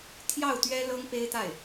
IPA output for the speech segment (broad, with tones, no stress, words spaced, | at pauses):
t̪ʰjɑ˥˩ʊ̯t̪ɥɛ˥ lɤ˥ŋpe˥ɪ̯t̪a˥˩ɪ̯